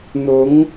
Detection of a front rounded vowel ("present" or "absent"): absent